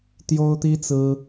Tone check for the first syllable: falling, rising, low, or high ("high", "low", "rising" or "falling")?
high